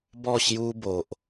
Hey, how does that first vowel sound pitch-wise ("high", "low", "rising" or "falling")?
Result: falling